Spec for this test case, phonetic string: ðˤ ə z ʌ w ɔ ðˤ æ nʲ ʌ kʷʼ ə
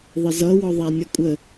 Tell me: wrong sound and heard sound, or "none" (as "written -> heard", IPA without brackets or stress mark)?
none